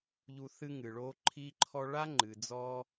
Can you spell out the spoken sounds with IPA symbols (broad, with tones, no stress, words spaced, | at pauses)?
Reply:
ʎu˧ θɨ˦ŋɨ˨ɭo˦ ǃʰi˦ǃʰɔ˦ ɭa˦ŋ͡ǃɨ˨ d͡zɔ˦